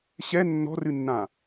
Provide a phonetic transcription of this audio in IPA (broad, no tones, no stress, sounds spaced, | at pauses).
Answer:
ɕ ɛ nː ɔ̤ r ɨ nː ã